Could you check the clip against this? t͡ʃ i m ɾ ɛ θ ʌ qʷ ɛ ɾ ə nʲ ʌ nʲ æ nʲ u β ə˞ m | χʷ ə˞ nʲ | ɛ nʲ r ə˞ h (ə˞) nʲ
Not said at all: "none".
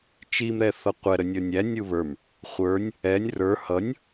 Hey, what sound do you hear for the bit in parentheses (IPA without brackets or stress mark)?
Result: ʌ